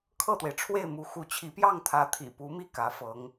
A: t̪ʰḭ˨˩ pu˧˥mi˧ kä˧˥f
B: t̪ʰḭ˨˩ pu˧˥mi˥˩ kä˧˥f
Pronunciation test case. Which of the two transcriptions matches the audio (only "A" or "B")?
B